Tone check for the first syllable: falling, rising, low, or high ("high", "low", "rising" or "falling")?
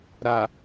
low